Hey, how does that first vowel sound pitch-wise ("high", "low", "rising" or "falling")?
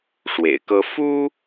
low